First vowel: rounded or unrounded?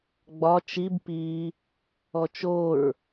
rounded